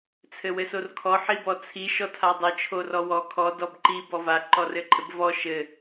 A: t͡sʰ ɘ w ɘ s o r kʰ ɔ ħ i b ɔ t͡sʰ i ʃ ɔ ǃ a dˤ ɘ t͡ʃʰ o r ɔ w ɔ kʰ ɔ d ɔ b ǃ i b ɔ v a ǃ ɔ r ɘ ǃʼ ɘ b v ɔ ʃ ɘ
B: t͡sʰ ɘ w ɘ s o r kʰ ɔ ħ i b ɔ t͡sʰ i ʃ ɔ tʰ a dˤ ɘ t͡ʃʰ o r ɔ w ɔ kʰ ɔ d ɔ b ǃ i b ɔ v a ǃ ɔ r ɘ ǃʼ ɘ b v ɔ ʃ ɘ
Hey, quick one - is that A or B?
B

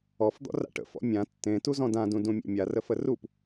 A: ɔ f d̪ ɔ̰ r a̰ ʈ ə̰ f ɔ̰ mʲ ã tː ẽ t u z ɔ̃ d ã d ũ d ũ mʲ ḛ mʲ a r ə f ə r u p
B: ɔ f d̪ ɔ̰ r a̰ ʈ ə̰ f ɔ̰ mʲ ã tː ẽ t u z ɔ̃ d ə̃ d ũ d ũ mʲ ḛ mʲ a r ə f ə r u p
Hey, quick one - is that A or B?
A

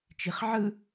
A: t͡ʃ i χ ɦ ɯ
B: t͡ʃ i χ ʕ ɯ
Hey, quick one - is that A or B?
B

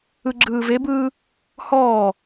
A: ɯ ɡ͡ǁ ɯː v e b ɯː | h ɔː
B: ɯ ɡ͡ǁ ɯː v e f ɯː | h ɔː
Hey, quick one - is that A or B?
A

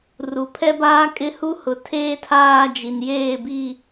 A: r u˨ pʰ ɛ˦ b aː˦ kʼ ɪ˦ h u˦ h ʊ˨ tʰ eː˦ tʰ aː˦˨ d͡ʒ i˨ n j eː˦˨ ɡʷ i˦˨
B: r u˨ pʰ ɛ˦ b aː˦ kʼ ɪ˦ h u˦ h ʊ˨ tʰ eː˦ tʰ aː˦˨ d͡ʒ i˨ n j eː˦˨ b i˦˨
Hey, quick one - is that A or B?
B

